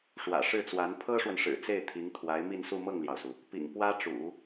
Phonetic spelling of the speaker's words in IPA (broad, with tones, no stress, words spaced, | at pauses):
ʂwä̰˨˩ʂɻ̩˥˩t͡swa˧˥n pʰɤ˥ʂwə˨n ʂɻ̩˨˩t͡se˥˩ɪ̯ t̪ʰi˧˥ŋt̪ʰwa˧˥ɪ̯mi˥˧nsu˥˧ mɤ˥˩ŋljɑ˩ʊ̯su˩ | pḭ˨˩ŋ pwä˥ʈ͡ʂṵ˨˩˦